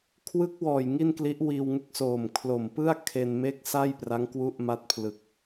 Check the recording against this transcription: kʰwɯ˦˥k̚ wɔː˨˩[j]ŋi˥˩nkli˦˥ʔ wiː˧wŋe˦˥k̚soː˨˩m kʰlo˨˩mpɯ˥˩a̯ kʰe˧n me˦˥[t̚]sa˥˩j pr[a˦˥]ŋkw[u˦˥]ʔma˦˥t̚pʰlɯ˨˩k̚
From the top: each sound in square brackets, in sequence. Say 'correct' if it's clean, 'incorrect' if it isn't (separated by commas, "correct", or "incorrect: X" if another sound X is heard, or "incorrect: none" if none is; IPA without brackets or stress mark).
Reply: correct, incorrect: k̚, correct, correct